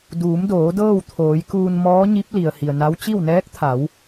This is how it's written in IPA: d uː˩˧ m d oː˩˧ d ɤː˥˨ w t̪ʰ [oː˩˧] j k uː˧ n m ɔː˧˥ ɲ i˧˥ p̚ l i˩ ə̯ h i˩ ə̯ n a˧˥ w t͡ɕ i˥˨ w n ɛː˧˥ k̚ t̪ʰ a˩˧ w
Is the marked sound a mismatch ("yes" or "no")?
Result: no